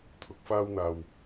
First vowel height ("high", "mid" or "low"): high